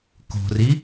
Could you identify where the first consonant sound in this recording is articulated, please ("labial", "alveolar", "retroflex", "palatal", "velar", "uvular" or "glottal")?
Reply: velar